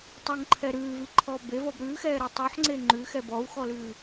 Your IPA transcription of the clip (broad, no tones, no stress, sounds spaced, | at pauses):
tˤ o ŋ ǃʰ ɛ ɾ ʉː v i ǃʰ ɔː b e v ɔ b ɾ ʉː x ɛː ɾ ɛ tˤ ʉ ħ ŋ͡ǀ e ŋ͡ǃ ʉ x ɛ b ɔ u̯ x ɔ l ʉː